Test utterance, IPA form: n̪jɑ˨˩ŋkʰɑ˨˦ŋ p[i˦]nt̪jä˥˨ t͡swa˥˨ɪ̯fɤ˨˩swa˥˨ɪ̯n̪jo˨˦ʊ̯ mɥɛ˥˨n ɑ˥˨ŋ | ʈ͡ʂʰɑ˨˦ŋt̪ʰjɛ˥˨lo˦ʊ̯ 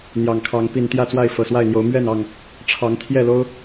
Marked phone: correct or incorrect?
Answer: incorrect